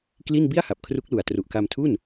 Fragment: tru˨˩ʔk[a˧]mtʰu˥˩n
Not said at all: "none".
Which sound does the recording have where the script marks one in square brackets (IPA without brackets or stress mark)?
a˧